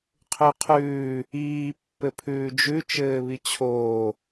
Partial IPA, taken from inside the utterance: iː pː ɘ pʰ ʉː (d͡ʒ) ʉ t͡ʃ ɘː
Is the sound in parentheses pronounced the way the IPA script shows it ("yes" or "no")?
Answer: yes